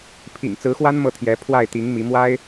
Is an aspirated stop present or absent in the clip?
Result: present